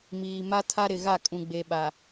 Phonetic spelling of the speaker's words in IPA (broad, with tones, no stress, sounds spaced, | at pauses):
m iː˨ m a˦ tʰ a˦ ɾ ɪ˨ ɣ a˦˨ kʼ ũ˨ ɡ͡b e˨ ɓ a˨